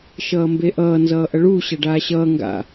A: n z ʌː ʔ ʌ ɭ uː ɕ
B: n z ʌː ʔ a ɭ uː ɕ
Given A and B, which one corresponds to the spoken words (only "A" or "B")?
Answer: A